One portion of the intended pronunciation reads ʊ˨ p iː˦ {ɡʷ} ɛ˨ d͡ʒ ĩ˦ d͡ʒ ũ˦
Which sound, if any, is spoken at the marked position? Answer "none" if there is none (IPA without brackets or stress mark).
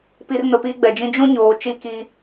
ɡ͡b